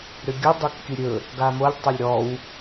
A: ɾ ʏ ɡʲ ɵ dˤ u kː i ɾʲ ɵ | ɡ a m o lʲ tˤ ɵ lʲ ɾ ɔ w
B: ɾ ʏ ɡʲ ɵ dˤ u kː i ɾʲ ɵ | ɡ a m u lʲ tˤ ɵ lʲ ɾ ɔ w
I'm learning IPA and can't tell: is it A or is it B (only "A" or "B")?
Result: A